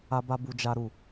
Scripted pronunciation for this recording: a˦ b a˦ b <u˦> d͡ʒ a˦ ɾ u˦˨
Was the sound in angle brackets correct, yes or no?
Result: yes